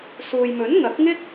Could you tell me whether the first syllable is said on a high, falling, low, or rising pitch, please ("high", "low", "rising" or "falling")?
low